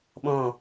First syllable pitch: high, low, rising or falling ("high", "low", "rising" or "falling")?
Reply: falling